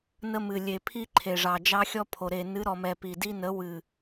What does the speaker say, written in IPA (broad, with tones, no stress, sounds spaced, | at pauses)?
n ə˦ m ɨ˨ lʲ e˨ pʰ i˦ ǃʰ e˨ ʐ ɑ˨ d͡ʒ ɑ˦ xʲ ɔ˦ pʰ o˨ ɾ e˨ n ɨ˨˦ ɾ ɔ˨ m ɛ˨ p i˨ d i˦ n ə˨˦ w ɨ˨